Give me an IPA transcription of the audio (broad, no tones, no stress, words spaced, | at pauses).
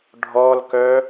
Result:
ɖʱɔlkœ